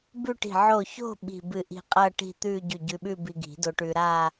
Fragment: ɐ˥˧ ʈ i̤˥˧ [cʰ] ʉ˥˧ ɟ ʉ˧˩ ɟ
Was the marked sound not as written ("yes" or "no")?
yes